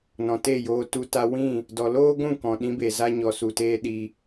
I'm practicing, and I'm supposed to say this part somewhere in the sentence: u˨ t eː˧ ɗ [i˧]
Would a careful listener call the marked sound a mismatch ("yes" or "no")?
no